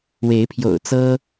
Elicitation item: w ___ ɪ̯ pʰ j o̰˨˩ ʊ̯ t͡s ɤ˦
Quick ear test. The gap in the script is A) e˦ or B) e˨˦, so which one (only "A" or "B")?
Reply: B